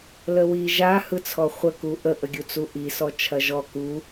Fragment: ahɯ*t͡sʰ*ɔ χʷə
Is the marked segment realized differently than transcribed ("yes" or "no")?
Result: no